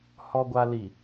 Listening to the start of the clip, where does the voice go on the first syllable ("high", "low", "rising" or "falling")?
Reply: low